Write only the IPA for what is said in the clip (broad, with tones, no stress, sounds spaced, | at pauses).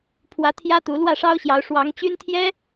pʰ w ä˧˥ t̪ʰ j ä˥ t̪ u˧˥ l w ä˥˩ ʂ ɑ˥ ʊ̯ ɕ j ɑ˧˥ ʊ̯ ʂ w ɑ˧˥ ŋ t͡ɕ y˥ n t̪ʰ j ɛ˥